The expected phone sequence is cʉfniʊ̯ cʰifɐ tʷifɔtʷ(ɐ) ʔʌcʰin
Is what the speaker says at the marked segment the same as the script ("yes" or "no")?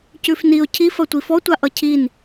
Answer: no